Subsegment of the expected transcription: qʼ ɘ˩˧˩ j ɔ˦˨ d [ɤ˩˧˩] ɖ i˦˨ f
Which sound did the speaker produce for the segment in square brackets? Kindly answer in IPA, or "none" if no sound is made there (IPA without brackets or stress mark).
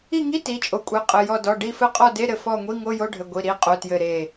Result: ɔ˩˧˩